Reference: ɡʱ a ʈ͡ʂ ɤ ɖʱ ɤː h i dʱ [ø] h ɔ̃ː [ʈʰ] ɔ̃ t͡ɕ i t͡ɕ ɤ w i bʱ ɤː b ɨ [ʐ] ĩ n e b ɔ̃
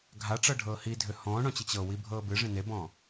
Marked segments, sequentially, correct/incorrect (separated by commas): correct, incorrect, correct